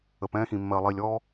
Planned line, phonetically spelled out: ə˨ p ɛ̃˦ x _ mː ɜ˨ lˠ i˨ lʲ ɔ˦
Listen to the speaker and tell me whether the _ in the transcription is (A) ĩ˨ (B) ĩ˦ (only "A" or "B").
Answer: A